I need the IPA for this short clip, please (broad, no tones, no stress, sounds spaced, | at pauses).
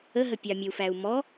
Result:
ə ɦ ə pʲ ɑ mʲ ə u̯ f æ u̯ m ɔ